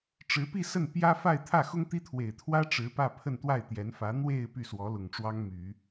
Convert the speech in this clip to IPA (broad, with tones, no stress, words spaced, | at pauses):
ʈ͡ʂɻ̩˧˥pi˥˧sə˥˩n pjä˥fa˥˧ɪ̯ t̪ʰä˥˩ xʊ˥ŋ t̪i˥t̪ʰwe˨˩ɪ̯ t̪ʰwä˥ ʈ͡ʂɻ̩˧˥pä˥˧ pʰə˥˧nt̪wa˥˩ɪ̯t̪jɛ˧˥nfä˧˥ n̪we˥˧ɪ̯ py˥˩swɔ˧˥lʊ˨˩ŋʈ͡ʂwɑ˥ŋ my˨˩˦